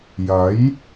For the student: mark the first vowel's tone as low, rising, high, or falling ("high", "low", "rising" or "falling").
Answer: rising